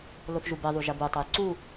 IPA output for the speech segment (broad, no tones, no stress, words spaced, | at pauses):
loθʒubeðˤu ʒɐbutˤoj ǀu